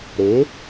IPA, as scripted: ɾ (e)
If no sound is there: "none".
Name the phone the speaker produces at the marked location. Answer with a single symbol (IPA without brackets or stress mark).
e